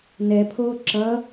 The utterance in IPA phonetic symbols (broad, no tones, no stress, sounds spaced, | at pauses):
n ɛ pʰ oː ǁ ʌ